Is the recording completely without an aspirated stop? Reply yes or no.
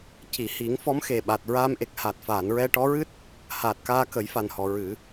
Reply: yes